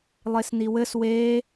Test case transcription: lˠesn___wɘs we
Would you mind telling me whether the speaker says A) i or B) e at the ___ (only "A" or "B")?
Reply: A